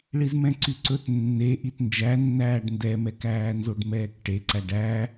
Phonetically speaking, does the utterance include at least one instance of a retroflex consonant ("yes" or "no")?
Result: yes